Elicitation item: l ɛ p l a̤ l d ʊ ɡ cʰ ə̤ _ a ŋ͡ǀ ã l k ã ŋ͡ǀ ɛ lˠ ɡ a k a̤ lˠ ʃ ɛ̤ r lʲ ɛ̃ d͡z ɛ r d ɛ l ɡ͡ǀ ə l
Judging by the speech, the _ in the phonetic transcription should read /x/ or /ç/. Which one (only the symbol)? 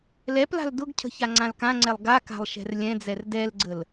ç